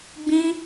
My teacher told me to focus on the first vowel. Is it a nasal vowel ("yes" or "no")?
yes